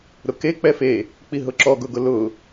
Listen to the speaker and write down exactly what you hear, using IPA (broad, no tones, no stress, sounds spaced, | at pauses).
ɾ ʊ k e k͡p ɛ f e | k͡p i ɦ ʊ ǁ ɔ ɡ ʊ ɡ ʊ l ʊ